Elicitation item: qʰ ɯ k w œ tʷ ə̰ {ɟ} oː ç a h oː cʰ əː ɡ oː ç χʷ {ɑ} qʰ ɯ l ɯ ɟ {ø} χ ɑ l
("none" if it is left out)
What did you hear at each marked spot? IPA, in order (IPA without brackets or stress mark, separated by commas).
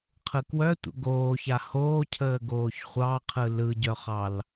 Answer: ɡ, ɑ, œ